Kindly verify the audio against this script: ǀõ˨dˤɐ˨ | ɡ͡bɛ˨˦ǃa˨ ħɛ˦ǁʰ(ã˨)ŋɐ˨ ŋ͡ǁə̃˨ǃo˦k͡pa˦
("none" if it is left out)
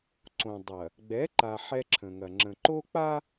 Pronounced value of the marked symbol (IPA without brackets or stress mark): ə̃˨